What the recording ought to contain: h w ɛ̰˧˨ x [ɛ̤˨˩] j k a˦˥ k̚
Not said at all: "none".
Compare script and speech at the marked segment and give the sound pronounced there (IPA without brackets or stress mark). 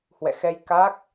ɛ˧